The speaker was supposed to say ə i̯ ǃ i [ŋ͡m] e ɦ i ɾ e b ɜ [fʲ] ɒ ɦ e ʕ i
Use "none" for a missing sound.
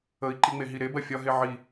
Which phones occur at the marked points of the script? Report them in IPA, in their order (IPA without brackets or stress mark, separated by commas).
ŋ͡m, fʲ